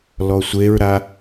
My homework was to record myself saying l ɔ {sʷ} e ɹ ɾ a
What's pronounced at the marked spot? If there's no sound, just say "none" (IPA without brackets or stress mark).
sʷ